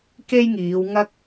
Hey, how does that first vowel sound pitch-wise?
high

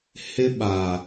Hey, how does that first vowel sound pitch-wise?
high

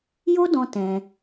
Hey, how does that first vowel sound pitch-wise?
high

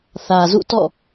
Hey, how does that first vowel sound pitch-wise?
low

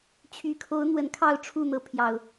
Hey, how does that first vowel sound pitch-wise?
low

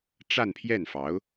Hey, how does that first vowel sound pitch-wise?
falling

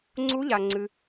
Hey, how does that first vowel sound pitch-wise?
rising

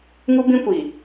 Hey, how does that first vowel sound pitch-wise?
high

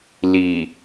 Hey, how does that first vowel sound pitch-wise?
low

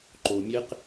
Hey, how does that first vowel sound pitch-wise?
low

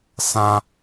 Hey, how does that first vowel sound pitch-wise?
high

